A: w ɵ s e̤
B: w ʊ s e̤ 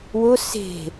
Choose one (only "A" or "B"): B